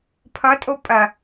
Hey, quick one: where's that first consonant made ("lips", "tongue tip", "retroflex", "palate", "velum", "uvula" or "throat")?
lips